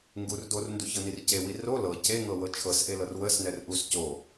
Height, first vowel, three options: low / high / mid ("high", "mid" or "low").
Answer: high